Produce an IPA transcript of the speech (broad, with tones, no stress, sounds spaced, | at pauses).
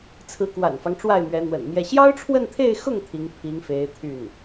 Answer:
t͡sʰ ɹ̩˧˥ k w a̰˨˩ n f ɑ˦ ŋ ʈ͡ʂ w a˥˩ ɪ̯ m ɥ ɛ˧˥ n̪ w ə̰˨˩ n m j ɛ˥˩ ɕ j ɑ˥ ʊ̯ ʈ͡ʂʰ w ə˥˧ n t̪ʰ e˥˧ ɪ̯ x ʊ˥˩ ŋ t̪ʰ i˧˥ ŋ pʰ i˧˥ ŋ f e˧˥ ɪ̯ t̪ʰ y˥˩ n